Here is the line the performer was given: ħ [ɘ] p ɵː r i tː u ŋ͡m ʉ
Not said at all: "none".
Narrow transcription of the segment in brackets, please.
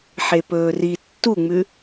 e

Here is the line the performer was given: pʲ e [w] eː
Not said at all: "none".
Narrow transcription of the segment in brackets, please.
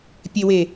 w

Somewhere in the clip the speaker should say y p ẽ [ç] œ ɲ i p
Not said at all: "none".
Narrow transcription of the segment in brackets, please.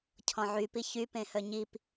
h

